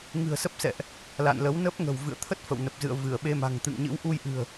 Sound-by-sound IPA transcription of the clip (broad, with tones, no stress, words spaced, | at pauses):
ŋɨ̤˨˩ə̯sə˦˥p̚sɛ̰˧˨ʔ | la̰˧˨nlə˨˦w nə˦˥p̚ ŋə̤˨˩wvɨ̰˧˨ə̯t̪ʰə˦˥t̚ fə̰˧˨wnə˨˩p̚zɨ̰˧˨ə̯ vɨ˧˩ə̯ɓe˧ma̤˨˩ŋ t̪ɨ̰˧˨ŋɲɨ̰˧˥w ʔu˧jʔɨ̤˨˩ə̯